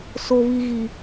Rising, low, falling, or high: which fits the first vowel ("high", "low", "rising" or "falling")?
high